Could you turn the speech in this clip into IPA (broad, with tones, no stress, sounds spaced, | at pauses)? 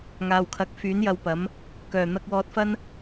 ŋ aː˨ w kʰ ɐ˨˥ k̚ f yː˨˥ n j ɐ˧ w p ɐ˨˥ m | k œː˨˩ n̪ ɐ˧ k̚ w ɔː˧ t̚ f ɐ˥ n